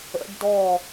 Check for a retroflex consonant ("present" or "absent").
present